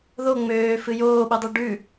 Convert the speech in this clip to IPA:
ð o ŋ͡m øː f ɨ j oː ɓ ɨ dˤ ʉ ɖ ʉ

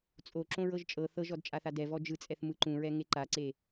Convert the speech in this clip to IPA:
t͡sʼ o ǁ õ ɹ ɤ ʒ t͡ʃʼ ɤ θ ɤ ʒ ɔ d t͡ʃʼ a θ a d ɛ v ɔ d͡ʒ ɯ t͡sʼ ɛ θ m ɯ ǃ ũ ɹ ɛ ŋ e ǃ a ǀ e

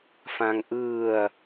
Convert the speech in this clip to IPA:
f ã ŋ ʔ ɯː ɐ̯

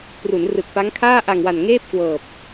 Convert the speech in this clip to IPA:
k r u˩˦ n r ɯ˨˩ k̚ p a˦˥ ŋ kʰ aː˥˩ ʔ a˨˩ ŋ w a˨˩ n ŋ eː˥˩ p̚ k w ɤː˨˩ p̚

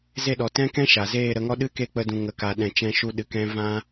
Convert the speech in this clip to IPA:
z e˦˨ ɗ ɔ˨ t ɛ̃˦ k ɛ̃˦ ʃ a˨ z eː˦˨ ɾ ə˧ ŋ ɔ˦ ɗ ɨ˦ k e˦˨ k͡p ə˧ d ũ˨ ŋ ə˨ k a˨ ɗ ɛ̃˨ t͡ʃ ɛ̃˧ ʃ u˧ ɗ ɨ˨ k ɛ̃˦ v ã˦

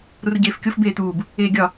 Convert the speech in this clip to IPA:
ɾ u r ɟ eː f kʲ o f b eː t̪ uː b | eː ɡʲ ɒ

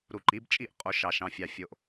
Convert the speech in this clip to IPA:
ɾ u˨˩ ǃ i˩˥ b t͡ʃʼ i˥˩ ʔ qʼ o˧˩˧ ʃ ɑ˨˩ ʃ ɑ̃˨˩ fʲ ɑ˨˩ fʲ o˨˩ ʔ

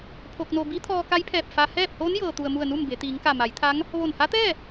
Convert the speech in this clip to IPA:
pʰ o˧ k̚ n o˧ b i˧˥ t̪ʰ ɔː˧ k a˧˥ j pʰ ɛː˧˩ p̚ f a˧ h ɛː˥˨ p̚ h oː˧˥ n j ɤː˩ t̪ u˩ ə̯ m u˧˩ ə̯ n u˥˨ m b e˩˧ t̪ iː˩˧ ŋ k a˧˩ m a˩˧ j t̪ʰ a˧˥ ŋ | ʋ o˧˩ n h a˧˥ t̪ ɛː˥˨

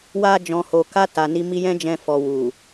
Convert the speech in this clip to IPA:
w a˧ d͡ʒ ɔ̃˨ h o˨ k a˧ t a˨ n i˧ m i˧ j ɛ̃˦ d͡ʒ ɛ̃˧ f ɔ˨ w u˨

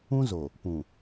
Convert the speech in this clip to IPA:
ũ˦ z o˨ | p ũ˨

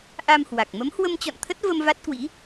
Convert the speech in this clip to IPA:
ʔ a˧ m h w a˨˩ k̚ m ə˨˦ m h w ə˧ m t͡ɕ ɔ̰˧˨ n t̪ʰ ə˦˥ t̚ v ə˧ m v a˦˥ t̚ k w ḭ˧˥

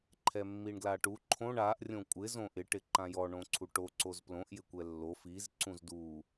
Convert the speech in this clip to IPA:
ǃʰ ɛ mː i ɳ ɡ l a ʈ u ǃʰ õ ɳ a ʔ rʲ õ kʷʼ ɪ z õ ʔ ɪ ʈ ɪ ǃ ã j ɔ ɳ õ ǀʰ u ʈ o ǀ o z p l õ ʔ j ɪ kʷ ɛ lː o f i z ǀ ũ z d u

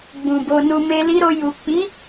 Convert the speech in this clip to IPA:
ɡ͡b ũ˨ b o˧ n u˧ m e˧ l i˧ ɾ o˧ j u˨ k͡p i˨˦

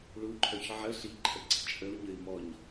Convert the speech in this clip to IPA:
ɭ u ǃʰ œ ç ʕ ə ɬ i ǃʰ ə ɡ͡ǀ ə t͡ʃʼ ə u̯ ɲ ə i̯ m ɔ ɲ

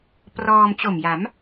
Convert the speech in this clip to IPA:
p r ɔː˧ m t͡ɕ o˨˩ m j a˩˦ m

